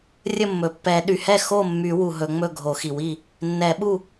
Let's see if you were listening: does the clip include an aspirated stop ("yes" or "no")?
no